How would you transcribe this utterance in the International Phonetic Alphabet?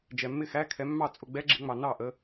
d͡ʒ ɛ˨ mː ɪ˥˧ x æ˧˥˧ kʰ ɛ˨˦ mː ɑ˥˩ t͡sʼ ʊ˥˩ ɡ͡b ɛ˦˥ ɡ͡ǁ ɪ˨˦ ŋ͡m ɑ˨ n ɑ˥˩ ʔ ə˨˦

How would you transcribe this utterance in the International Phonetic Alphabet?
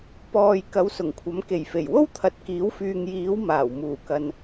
p ɔː˨ j k ɐ˨˥ w s ʊ˨˩ ŋ kʷʰ ɐ˨˥ m k e˨˩ j f e˨˩ j w o˥ w t̪ʰ ɐ˨ t̚ k iː˨˥ w f yː˨ ŋ j iː˨˥ w m aː˨˩ w m uː˨˩ k ɐ˨ n

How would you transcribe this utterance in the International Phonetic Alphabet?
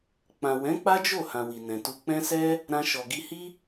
k͡p ã˨ w ɛ̃˨˦ k͡p a˦ d͡ʒ o˦˨ h ã˨ w i˨ n ɛ̃˨ t u˧ k͡p ɛ̃˦ s ɛ˦ | ɾ ã˧ ʃ ɔ˨ ɡ i˧ h i˦

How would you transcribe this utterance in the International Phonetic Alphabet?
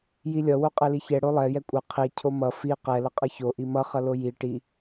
j i lʲ ʌ w o qʼ ɛ l i ç ɛ ɽ o lˠ ɛ j ɛ kʷʼ ʌ qʰ i cʰ o m ʌ f i q ɛ l ʌ qʼ ʌ ç o ʔ i m ʌ χ ʌ l o j i ʈ i

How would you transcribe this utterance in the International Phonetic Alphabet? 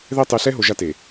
ð ɛ˦ tˤ e˨˦ ɬ ɛ˦ ɦ o˨ ʒ a˦ t e˨

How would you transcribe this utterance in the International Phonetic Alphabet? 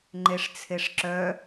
ŋ͡ǃ e ʂ t͡sʰ e ʂ ǁ œ

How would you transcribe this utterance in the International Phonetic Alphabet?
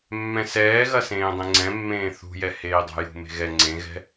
mː ɛ̃ s ɛː ɣ ɐ s ẽː dˤ ẽ ŋ͡ǀ ɛ̃ mː ẽː θ ṳ j ɛ h eː dˤ a̤ j ṳ m e̤ ɣ ɛ ŋ͡ǀ ẽ ɣ ɛ̤

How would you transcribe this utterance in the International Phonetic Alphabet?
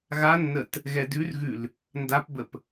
ɣ a nː ə t | ɣ ɛ d ʉ r ɣ ʉ l | n d a p b ə p

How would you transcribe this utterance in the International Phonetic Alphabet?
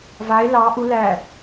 v a e̯ l ɑ ʔ u l æ

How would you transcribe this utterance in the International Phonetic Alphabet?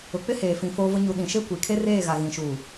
ʊ˨ k͡p ɪ˦ h eː˨ f ĩ˨ f oː˦ v ʊ˦ ɲ u˨ ɗ ĩ˨ ʃ e˦ kʷ i˨ kʰ e˦ r eː˦˨ ɣ a˨ ɣ ĩ˨ ʃ uː˨

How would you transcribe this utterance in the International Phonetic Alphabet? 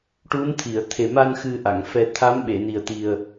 ʈ u˧˥ n t̪ʰ i˨˩˨ ə̯ t̪ʰ e˨˩ m a˧ n x ɨ˧ ʔ a˨˩˨ ŋ f ɛ˧ t̪ʰ a˧˥ m ɓ e˨˩˨ n i˨˩ ə̯ t̪ i˨˩ ə̯

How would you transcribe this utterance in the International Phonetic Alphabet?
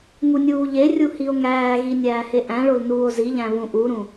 ŋ u nʲ uː ʎ e rʲ u h i o̯ ŋ æː ɣ i nʲ æː h e ʔ æ̃ ɭ o l n uː o̯ z i ʎ æ̃ β ũ ʔ u ɾ ũ

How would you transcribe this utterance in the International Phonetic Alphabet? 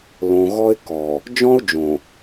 l õ˨ ɣ ɔ˦ ɪ̯ k ɔ˨ | d͡ʒ ɔ̃˦ ʊ̯ d͡ʒ õ˨

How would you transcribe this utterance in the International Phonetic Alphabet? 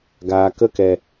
ɡ aː˨ k ə˦˨ k ɛ˨

